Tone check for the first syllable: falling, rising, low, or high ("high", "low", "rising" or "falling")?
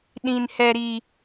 low